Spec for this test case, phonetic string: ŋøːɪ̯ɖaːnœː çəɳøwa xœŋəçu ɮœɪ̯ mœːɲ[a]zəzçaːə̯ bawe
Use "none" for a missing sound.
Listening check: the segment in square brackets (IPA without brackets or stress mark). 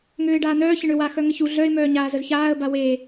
aː